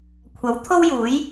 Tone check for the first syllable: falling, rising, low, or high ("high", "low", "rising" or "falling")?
rising